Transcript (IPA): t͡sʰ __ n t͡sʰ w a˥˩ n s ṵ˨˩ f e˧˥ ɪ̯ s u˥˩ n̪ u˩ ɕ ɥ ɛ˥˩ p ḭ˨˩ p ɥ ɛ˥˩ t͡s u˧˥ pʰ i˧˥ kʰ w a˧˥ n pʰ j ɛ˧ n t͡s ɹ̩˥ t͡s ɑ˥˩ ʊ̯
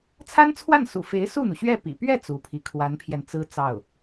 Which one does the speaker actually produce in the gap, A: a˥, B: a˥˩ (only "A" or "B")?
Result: A